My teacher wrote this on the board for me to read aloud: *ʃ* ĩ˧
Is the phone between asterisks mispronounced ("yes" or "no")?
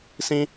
yes